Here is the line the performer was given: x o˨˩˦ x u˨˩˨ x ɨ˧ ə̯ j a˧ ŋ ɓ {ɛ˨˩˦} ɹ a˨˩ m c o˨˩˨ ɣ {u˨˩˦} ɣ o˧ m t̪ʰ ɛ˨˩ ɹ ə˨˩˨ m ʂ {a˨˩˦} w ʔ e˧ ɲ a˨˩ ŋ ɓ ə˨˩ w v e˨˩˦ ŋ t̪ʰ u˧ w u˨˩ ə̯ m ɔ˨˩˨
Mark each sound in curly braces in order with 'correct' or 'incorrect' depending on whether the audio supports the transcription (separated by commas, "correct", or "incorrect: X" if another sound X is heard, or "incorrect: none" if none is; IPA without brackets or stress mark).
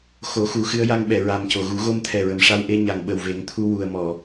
incorrect: ɛ˨˩˨, correct, incorrect: a˧